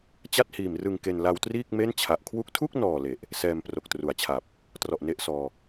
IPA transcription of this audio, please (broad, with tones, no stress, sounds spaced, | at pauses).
t͡ɕ a˥˩ t̚ h iː˨˩ m r ɯ˧ ŋ k e˧ n l a˧ w t r iː˥˩ k̚ m e˥˩ n t͡ɕʰ a˨˩ ʔ kʰ w u˥˩ k̚ tʰ u˥˩ k̚ n ɔː˨˩ l e˨˩ ʔ | s ɛː˧ m p r o˨˩ k̚ t r u˨˩ a̯ t͡ɕʰ a˨˩ p̚ | t r ɔ˨˩ ʔ n e˦˥ ʔ s ɔː˧